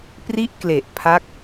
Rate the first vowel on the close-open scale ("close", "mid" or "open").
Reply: close